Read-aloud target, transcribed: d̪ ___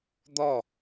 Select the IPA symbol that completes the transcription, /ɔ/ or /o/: ɔ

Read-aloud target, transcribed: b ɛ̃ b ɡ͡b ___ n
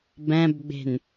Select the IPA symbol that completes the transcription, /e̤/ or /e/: e̤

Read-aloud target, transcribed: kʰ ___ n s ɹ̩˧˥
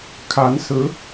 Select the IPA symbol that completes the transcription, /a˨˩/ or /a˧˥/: a˧˥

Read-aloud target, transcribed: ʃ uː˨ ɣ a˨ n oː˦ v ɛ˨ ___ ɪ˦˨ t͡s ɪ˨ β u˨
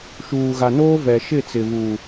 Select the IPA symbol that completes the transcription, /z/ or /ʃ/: ʃ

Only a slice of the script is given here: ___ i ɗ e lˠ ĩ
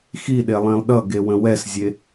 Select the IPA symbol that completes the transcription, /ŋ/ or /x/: x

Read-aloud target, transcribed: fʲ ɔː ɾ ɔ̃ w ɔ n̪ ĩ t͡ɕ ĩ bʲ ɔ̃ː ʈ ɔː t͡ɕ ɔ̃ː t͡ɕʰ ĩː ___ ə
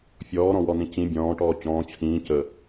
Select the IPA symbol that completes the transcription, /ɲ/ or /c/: c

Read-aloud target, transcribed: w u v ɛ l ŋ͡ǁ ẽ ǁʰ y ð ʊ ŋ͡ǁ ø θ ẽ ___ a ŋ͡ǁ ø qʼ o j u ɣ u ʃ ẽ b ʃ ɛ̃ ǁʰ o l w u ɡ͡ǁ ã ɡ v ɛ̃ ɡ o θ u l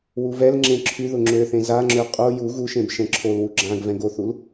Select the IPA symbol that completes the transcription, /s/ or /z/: z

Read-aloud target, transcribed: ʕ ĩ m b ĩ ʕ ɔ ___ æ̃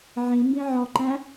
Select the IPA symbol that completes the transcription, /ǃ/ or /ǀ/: ǃ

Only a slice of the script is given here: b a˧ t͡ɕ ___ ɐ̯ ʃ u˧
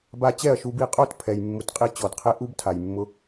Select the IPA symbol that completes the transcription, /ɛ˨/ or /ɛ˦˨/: ɛ˦˨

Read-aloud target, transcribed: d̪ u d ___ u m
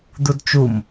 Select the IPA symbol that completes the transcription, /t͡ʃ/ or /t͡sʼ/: t͡ʃ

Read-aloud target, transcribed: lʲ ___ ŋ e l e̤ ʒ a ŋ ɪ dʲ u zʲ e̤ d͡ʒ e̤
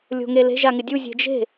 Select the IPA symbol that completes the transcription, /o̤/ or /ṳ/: o̤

